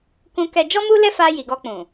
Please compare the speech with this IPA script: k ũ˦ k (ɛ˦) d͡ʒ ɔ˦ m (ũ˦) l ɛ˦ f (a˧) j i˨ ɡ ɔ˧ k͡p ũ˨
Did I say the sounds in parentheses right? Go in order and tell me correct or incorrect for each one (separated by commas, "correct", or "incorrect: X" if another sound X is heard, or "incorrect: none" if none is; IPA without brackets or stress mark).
correct, incorrect: u˦, correct